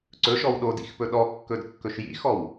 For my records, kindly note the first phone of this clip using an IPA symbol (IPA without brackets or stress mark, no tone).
ǀ